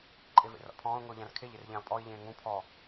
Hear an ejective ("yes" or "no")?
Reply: yes